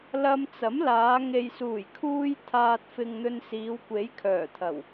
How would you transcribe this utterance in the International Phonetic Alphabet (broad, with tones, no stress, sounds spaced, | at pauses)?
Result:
l ɐ˧ m t͡s ɐ˨˥ m l aː˨˧ ŋ e˨ j s uː˨˩ j kʰ uː˧ j t̪ʰ aː˨ t̚ f ɪ˨ ŋ n̪ ɵ˧ n s iː˨˧ w kʷ e˨˥ j kʰ œː˨˩ t̪ʰ ɐ˨˩ w